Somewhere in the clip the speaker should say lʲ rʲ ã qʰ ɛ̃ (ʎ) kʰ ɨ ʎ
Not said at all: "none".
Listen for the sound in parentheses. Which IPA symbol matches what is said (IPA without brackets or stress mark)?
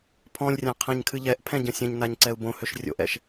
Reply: ɲ